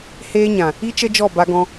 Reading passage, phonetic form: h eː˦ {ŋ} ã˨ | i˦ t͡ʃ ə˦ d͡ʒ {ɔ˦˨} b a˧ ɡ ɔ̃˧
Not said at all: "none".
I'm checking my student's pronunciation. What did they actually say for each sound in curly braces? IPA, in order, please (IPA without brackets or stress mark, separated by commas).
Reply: ɲ, ɔ˦˨